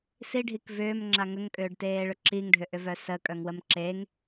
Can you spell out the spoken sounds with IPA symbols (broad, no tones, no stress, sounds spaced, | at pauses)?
s i ɖʱ i k v ʏː m ŋ͡ǁ a ŋ ə ŋ kʼ ʏː ɖ t eː ɭ ʏ ǁʰ i ŋ ɖʱ ʏ ʔ ʏ v œ s ə kʼ œ ŋ w ə m ǁ e ŋ